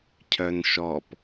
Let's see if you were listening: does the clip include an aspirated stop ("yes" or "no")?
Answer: yes